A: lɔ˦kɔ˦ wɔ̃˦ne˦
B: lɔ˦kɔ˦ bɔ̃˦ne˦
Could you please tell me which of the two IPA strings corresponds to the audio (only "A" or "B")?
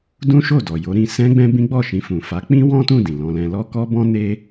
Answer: B